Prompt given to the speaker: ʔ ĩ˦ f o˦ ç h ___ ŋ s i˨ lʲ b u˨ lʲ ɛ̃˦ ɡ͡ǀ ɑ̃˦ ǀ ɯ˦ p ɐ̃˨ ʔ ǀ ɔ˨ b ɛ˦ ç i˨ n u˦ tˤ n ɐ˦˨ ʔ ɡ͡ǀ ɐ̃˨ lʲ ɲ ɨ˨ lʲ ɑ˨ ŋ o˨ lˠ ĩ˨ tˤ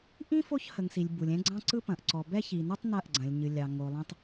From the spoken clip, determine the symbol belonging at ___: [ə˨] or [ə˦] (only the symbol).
ə˨